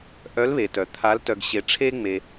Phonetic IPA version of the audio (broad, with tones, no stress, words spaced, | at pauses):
ʔœ˧˥lβe˩tœ˩ t̪ʰa˧˥l tœ˧ɡɕe˧ ʈ͡ʂʰe˥ ŋ͡me˧